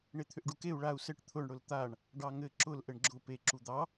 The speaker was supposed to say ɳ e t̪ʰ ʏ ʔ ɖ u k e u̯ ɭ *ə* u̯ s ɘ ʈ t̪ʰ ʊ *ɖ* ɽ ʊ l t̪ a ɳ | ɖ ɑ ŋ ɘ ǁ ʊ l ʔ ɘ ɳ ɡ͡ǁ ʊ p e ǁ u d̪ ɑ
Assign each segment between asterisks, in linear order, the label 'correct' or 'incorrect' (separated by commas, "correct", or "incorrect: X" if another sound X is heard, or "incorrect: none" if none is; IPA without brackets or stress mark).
incorrect: a, incorrect: ɳ